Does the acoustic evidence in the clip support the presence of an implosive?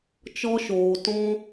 no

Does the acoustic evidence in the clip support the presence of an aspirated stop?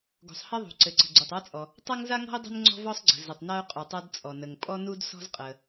no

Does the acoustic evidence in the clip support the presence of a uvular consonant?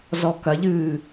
no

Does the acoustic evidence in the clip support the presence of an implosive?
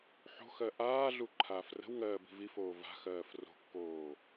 no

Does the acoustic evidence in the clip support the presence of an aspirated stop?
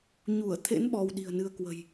yes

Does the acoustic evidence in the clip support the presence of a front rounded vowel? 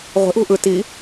no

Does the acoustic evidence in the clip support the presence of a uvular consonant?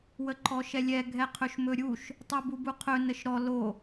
yes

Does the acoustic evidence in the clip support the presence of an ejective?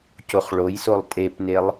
yes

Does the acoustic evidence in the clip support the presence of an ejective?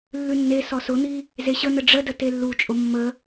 yes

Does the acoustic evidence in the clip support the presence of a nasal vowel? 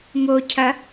no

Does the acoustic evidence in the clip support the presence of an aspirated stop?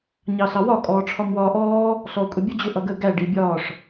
yes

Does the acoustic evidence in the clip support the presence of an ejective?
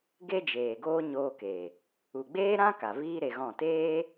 no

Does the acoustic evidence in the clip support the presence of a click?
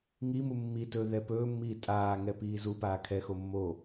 no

